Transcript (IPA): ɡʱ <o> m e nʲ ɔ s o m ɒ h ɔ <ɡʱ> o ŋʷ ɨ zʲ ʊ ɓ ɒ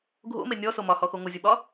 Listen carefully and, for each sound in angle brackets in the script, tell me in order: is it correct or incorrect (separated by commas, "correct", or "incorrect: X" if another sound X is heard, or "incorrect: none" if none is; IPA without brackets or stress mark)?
incorrect: o̰, incorrect: x